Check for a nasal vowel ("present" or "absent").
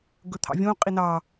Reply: present